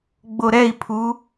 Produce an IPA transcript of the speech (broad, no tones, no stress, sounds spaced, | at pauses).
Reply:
ɡ͡b o ɾ ɛ i̯ pʰ u